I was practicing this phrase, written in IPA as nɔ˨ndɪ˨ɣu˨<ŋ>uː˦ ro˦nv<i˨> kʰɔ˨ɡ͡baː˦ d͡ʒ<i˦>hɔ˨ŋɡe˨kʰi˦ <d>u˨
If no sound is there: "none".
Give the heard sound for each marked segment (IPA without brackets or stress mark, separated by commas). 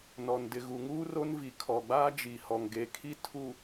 ŋ, i˨, i˨, tʰ